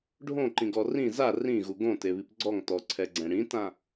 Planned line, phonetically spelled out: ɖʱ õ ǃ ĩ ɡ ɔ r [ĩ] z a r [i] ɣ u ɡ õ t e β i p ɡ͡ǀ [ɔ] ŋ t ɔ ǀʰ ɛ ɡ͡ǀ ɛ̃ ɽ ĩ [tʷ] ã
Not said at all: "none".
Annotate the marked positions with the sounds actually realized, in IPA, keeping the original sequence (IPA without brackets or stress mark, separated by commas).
ĩ, ĩ, ɔ, t